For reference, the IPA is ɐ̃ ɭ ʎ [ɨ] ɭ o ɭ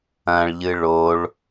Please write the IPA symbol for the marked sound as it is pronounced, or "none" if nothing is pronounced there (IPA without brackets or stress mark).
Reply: ɨ